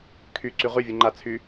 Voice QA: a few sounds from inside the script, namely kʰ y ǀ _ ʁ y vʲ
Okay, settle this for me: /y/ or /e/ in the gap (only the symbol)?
y